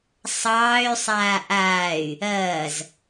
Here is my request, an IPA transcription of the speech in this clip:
sˤ ɑː y̯ sˤ aː ʔ aː y̯ | ɐː z

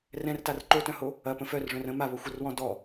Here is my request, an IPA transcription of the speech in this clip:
r ɛ̃ r t a r ǃ o t œ̃ h o | ɐ p ə̃ f œ r ʐ œ̃ r ə̃ m a β o xʷ ɐ r w ɔ̃ d ɔ

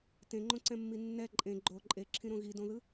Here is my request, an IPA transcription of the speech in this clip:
t ẽ ŋ͡ǃ õ ǀ ɛ̃ mː i nː ɛ ǃʼ ẽ ɡ͡ǃ o ǃʼ e ǁʰ ĩ ɾ õ ɣ i d õ ð ɯ

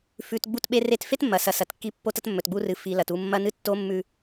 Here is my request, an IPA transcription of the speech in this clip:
f ʉ˨ t ɡ͡b u˦ t ɓ e˦ r e˦ t f e˦ t mː ɐ˨ s ɐ˨ s ɐ˨ t kː i˦ pː o˦ t ɐ˦ t mː ɵ˨ t ɡ͡b u˦ r ɨ˨ f i˨ l ɐ˨ t u˦˨ mː ɐ˦ n ɨ˦ tː o˦ mː ʉ˦

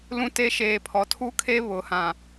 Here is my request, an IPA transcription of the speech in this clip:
l ũ˦ t e˦ ʃ eː˨ pʰ ɔ˨ tʰ u˦ kʰ e˦ β ʊ˨ h ã˨

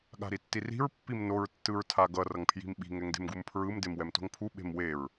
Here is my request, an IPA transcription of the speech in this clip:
ɠ a̤ ɾ i tː i r i̤ ɹ pː i m n o ɹ tː ɯ ɹ tʰ a ɡ ʌ r ʌ ŋ pʰ j i̤ m ɓ i̤ ŋ ɛ ŋ d e̤ m ɡ u m pʰ ɹ ɯ m d e m w ɛ m t o̤ ŋ pʰ u ɓ e̤ m w e ɹ

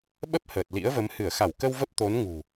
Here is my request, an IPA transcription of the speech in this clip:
ɓ ə˦˥ p̚ h əː˨˩ t̚ l ḭ˧˥ ə̯ v ə˨˦ m h ɨ˧˩ ə̯ x a˧˩ w k ə˧ w v ə˦˥ p̚ t̪ o˨˦ n ŋ ṳ˨˩

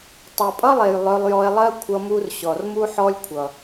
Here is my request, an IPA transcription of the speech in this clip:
tˤ u˨ pʼ ʌ˦ lˠ e˨ j lˠ œ˧ lˠ j ɔ˧ e̯ lˠ ɜ˦ kʷʰ ʌ˧ m u˧ r ɕ ɔ˨ r m u˦ ħ ɔ˦ lʲ kʷʰ ʌ˨

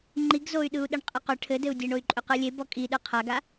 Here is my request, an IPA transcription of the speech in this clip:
ŋ͡ǃ i ɡ z o y̯ ɗ ɯ u̯ ɗ ə ɳ qʼ ɘ q ʏ ʈʰ ɘ d ɘ u̯ dʲ e ɳ o y̯ ǃʼ ʏ q ɯ lʲ e b ɔ kʼ i ɗ ɯ qʰ a ɡ a

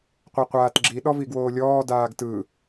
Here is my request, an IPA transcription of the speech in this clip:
qʷ ɤ qʷ aː t ɡ͡ǁ i ɗ ɔ v i ɡ w oː lʲ ɔː d aː ɡ t ɯ

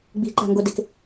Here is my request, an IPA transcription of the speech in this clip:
ɡ͡b i̤ ǃ a̤ ŋ ɡ o d e k

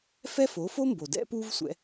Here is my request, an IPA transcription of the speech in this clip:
f ɛ˥ f o˩˥ f o˥ m b o˩ d ɛ̰˥ p u˥ v sʷ ɛ̰˧

